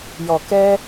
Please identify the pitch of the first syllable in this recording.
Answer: low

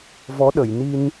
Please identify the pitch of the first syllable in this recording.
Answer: rising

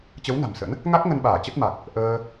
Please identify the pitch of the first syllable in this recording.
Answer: rising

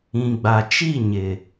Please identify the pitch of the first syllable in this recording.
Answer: low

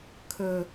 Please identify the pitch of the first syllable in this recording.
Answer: low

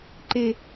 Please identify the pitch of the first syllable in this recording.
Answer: high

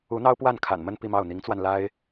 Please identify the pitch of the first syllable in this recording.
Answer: rising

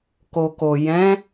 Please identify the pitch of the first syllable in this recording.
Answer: low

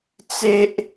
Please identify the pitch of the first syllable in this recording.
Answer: high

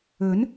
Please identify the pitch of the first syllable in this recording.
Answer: rising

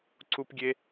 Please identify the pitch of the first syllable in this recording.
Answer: high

